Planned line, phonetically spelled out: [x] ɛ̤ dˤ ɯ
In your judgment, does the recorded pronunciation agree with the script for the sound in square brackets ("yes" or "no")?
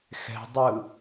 yes